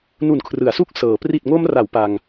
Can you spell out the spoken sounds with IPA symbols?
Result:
nu˨˩nkʰrɯ˩˦a̯su˦˥k̚ sɤː˩˦ pri˨˩t̚ŋo˧mra˩˦w pa˧ŋ

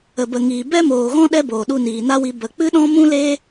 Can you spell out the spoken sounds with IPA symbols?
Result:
ə˨bə˨ŋiː˨ bɛ˦moː˨ɣɔ̃˦ ɗɛ˦boː˨ ɗu˧niː˨na˦wi˧ bə˨k͡pɨ˦ɗɔ̃˦ mũ˦leː˦

